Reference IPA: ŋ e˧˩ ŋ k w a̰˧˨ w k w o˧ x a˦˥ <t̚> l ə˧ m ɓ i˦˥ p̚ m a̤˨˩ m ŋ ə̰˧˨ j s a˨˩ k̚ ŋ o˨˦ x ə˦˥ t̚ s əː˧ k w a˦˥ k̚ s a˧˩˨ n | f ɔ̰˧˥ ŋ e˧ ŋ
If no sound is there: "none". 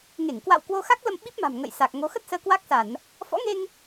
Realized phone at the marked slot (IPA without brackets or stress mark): k̚